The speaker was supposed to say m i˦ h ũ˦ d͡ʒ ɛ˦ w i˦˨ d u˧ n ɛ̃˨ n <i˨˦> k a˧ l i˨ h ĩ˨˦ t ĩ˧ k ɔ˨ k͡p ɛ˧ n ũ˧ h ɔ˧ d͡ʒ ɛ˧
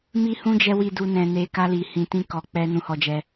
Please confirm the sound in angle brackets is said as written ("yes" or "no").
no